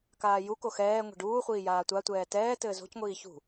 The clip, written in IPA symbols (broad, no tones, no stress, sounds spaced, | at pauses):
k aː j u k o x ɛː ŋʷ ɛ̤ ɖ uː χʷ iː j aː tʷ a tʷ ɛː t ɛː t ɘː z o̤ c ŋʷ iː ç ṳ